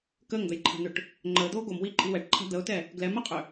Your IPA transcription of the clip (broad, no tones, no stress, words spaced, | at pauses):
kəːŋd̪əjǃʰa̤n̪ʏʈ | ŋ͡ǃəːd̪oː ɡomwiːǃʼi wɛʈǃʰa̤ d̪əʊ̯tɛ | ɡlɛmɛqʼʏ